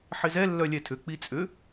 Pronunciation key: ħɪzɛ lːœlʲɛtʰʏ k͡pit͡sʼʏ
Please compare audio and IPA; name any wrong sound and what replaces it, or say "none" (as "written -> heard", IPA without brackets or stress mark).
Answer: none